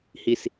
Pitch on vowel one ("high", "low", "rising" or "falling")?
low